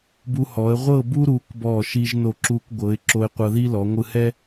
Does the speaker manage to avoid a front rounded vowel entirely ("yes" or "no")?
yes